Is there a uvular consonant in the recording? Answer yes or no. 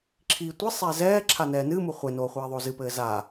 yes